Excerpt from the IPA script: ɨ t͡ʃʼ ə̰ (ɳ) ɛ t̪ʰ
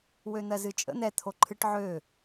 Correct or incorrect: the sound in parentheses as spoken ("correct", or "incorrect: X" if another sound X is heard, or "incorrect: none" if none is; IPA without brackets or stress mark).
incorrect: n̪